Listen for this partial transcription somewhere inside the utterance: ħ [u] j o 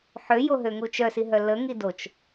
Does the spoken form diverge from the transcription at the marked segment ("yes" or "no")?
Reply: yes